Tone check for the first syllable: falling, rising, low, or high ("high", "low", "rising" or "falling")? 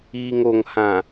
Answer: low